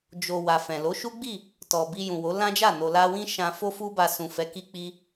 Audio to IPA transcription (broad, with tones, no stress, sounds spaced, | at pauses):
d͡ʒ o˨ w a˨ f ɛ̃˨ l o˨˦ ʃ u˦ ɡ͡b i˦˨ | t ɔ˨ b i˧ j ũ˨ w o˨˦ l ã˦ d͡ʒ a˦˨ n o˨ l a˧ w ĩ˦ ʃ ã˧ f o˦ f u˦ b a˧ s ũ˨ f ɛ˨˦ k i˧ k͡p i˧